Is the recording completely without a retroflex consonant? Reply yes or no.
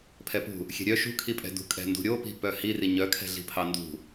yes